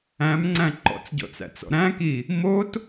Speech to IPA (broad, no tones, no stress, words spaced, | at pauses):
æ̃mŋ͡ǀæ̃ ǃɔ̰t͡sɟɔ̰t͡sæ̰t͡sɔ̰ ɾæ̃ki | mot